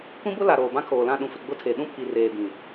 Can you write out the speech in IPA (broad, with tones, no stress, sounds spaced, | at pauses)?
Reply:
kʷ ĩ˦ b ʊ˦ l a˨ ɾ oː˨ b ã˦ kʰ oː˨ l ã˦˨ ɗ ũ˨ f ɪ˨ ɡ͡b ʊ˦ tʰ e˨ ɗ ũ˦ pʰ i˨ r eː˨ b ĩ˨